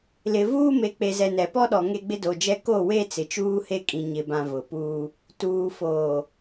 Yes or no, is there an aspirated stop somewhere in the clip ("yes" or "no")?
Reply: no